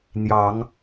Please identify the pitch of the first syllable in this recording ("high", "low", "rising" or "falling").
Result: rising